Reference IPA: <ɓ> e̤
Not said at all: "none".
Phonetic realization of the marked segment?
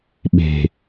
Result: ɓ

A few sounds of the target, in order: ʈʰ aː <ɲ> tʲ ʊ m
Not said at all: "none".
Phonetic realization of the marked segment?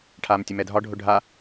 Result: m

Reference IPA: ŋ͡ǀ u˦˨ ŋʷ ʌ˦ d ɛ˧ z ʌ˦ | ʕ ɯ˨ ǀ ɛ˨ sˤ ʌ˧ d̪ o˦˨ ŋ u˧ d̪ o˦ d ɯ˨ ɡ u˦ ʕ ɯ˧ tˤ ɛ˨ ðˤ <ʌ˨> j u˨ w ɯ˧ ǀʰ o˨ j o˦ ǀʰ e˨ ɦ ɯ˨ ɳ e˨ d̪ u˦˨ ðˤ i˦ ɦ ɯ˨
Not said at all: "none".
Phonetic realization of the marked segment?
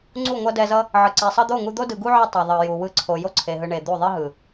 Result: ʌ˨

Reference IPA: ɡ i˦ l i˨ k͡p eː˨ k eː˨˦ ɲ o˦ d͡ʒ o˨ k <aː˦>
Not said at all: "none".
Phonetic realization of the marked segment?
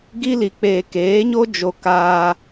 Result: aː˦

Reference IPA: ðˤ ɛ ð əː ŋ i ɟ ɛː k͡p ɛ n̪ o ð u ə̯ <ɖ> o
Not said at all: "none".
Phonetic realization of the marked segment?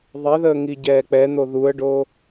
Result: ɖ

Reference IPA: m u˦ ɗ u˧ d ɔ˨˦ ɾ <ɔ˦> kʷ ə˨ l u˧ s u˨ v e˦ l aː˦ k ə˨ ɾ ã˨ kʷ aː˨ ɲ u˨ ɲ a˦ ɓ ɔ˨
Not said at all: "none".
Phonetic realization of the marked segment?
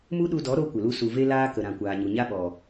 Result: o˦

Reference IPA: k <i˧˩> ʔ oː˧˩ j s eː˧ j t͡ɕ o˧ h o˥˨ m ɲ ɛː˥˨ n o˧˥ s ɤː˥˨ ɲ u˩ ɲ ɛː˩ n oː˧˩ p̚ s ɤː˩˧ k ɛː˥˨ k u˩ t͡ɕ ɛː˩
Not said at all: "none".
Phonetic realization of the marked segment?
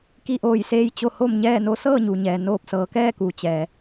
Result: i˧˩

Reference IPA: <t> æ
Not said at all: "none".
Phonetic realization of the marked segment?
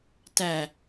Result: t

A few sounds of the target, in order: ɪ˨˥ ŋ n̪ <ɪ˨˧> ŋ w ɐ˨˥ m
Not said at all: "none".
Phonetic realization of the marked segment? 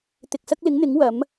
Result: ɪ˨˥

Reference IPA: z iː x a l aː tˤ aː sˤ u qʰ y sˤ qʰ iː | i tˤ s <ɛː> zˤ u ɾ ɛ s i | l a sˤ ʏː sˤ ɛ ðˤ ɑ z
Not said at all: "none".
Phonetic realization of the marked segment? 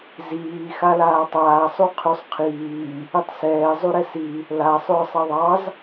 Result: ɛː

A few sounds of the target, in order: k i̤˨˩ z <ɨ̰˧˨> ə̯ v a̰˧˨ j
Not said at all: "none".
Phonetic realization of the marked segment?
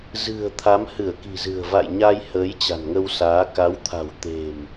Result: ɨ̤˨˩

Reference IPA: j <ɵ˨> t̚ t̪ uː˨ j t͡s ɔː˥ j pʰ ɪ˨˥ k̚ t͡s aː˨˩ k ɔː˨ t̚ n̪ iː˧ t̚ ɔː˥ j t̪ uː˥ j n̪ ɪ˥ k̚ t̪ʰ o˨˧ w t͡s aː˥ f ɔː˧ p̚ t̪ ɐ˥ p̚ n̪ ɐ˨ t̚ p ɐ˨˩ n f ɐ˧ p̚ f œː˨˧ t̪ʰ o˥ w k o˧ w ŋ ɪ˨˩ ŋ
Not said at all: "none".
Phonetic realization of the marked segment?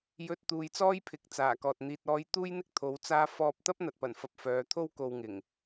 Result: ɵ˧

